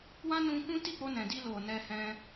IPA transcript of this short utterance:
wã˦nũ˧kũ˦ ti˦˨k͡po˧nɛ̃˨ di˧lo˨ nɛ˧hɛ̃˧

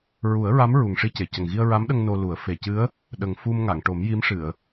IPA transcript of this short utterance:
ɹu˨˩˦ə̯ɹa˧˥m ɹu˨˩ŋʂi˧ce˨˩˨cə˨˩ŋ ɣi˧ə̯ɹa˧˥mɗə˧ŋ no˧lu˨˩˦ə̯ fe˨˩cɨ˧˥ə̯ | ɗə˨˩ŋ fu˧mŋa˨˩˨ŋʈo˨˩˦mji˧˥m ʂɨ˨˩˨ə̯

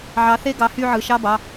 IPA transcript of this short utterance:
ʕɑ˨˥θe˥˧ ɡɑ˨˥hy˥˧ʕɯ˩˧˩ ʃɑ˧˥˧bɑ˩˧˩

